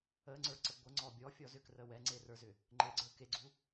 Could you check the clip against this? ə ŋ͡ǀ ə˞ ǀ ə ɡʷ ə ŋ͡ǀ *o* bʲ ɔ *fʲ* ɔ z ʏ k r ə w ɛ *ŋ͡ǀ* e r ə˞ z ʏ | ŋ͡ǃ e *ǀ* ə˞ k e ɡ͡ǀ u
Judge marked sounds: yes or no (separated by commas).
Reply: no, yes, yes, no